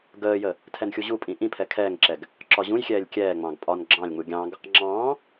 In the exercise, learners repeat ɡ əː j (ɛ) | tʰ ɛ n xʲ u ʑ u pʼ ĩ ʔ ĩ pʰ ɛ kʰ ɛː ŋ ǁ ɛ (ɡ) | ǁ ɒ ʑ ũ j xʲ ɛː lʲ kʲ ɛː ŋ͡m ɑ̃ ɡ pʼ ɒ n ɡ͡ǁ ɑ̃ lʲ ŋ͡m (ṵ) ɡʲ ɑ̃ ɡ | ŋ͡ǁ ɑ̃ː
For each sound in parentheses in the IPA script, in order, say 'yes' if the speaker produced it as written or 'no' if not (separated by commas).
no, yes, no